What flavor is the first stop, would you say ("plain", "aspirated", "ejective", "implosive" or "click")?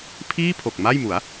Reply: aspirated